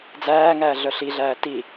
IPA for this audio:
d͡zæːŋæː ɮœɬiɮæː ti

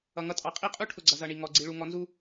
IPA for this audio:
ʌ˨ŋʌ˦tʼɑ˨ qʼi˦qʼu˦ ʈʰʊ˨ɡ͡ǀʌ˨zʌ˨ ɳi˨ ŋɔ˨ɡ͡ǀi˨ɭu˨ ŋɔ˨˦nzu˦

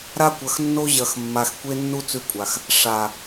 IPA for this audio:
ɾa˦kʷɐ˨xnːo˦ ʑɐ˨x mːa˨xkʷe˦nːu˦ t͡sʉ˦kʷʼa˨x | ʂa˨

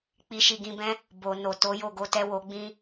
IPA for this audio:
k͡pi˧ʃi˧ɡĩ˧bɛ̃˦ | bo˨ no˨ to˨˦jo˦˨ɡo˧tɛ˦ wo˧ɡ͡bĩ˦

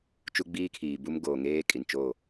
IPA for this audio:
t͡ʃu˦ɡ͡biː˦kʰiː˨ bu˦m ɡoː˨ŋeː˦ kʼi˨nt͡ʃo˦˨

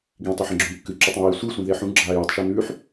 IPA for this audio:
ɡĩ tˤʉħẽɡ͡ǁũːkːɨ ǁʉtˤɐ̃ji sʷɨ sʷĩðeħũ ɡ͡ǁaːjitˤ ʃʉnʉːħ

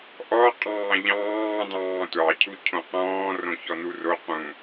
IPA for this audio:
ʔɔ qʼɑ̃ːʎɑ̃ː dɑ̃ːtʷɑ cʰucʰõqɔ̃ː rõçɔnuro qũ

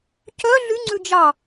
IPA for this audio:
cœ ɮy ŋ͡ǀʉd͡ʒɑ

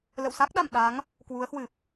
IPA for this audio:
lə̰˧˨w sa˦˥k̚ ɗa̰˧˨m ɗa˨˦ŋ | kwu˨˦ə̯hwɨ˨˩p̚

